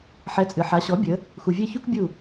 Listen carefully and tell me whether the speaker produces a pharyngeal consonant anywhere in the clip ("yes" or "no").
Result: yes